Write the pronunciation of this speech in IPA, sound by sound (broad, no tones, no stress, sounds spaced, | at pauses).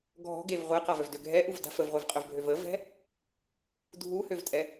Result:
ɡʱ ɔ̤ ɡ e v ʁʷ ɛ q a v œ v d ø ɡʱ ɛ ʔ u v d a̤ f ə v ʁʷ e v qʼ œ v bʱ ø v ə v ɛ̤ | dʱ u h ø v tʼ ɛ